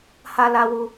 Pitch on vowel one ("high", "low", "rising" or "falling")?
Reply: high